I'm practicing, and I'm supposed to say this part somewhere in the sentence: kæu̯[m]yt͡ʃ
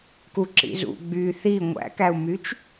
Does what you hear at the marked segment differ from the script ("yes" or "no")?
no